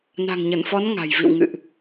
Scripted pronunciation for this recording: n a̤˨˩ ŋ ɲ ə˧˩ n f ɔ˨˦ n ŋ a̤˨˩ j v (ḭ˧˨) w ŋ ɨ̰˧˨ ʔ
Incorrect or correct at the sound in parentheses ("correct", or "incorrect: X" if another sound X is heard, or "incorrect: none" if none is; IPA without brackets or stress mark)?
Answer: correct